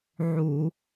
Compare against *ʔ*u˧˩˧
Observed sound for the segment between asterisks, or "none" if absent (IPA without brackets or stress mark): ʕ